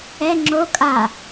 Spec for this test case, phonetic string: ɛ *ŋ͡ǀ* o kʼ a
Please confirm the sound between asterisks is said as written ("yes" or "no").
no